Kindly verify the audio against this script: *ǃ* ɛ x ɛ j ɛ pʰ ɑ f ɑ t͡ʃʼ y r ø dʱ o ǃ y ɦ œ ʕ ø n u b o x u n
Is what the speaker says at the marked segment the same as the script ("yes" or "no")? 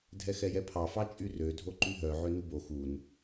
no